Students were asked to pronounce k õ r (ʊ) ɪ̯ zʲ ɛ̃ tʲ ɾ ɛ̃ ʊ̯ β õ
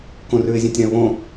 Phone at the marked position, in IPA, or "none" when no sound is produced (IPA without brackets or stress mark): ʉ